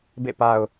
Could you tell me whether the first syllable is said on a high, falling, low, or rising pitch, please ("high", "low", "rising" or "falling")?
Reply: falling